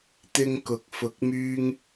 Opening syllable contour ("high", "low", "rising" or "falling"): high